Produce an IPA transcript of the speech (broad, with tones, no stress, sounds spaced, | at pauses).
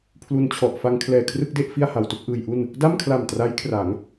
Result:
pʰ l u˧ n t͡ɕʰ ɔ˨˩ ʔ f a˧ ŋ kʰ l ɛː˨˩ kʰ r ɯ˥˩ k̚ d e˥˩ ʔ f i˥˩ a̯ h a˧ w t u˥˩ k̚ ʔ ɯː˧ j ʔ u˥˩ n | d a˥˩ m kʰ l a˨˩ m t r a˦˥ j kʰ r a˩˦ ŋ